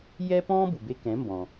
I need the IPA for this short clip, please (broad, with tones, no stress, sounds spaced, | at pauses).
j ɛ˥ p ɔ̃ː˥ b u˩ b e˧ k ɛ̃˩˥ m b ɔ̃˩